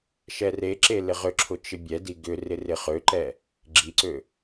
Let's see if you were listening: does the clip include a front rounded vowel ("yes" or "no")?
yes